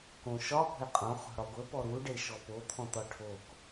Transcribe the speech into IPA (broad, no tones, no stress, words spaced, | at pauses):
kõʃɒ pɔ̤jqʼõ χo̤ɽɔɡʷə pɔɾu ɖeʃɔpo t̪ʰɔ̃t̪ɔʈʰok